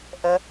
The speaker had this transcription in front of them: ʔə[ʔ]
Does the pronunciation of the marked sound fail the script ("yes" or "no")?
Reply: yes